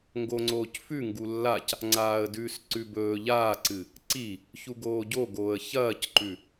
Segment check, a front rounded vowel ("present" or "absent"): absent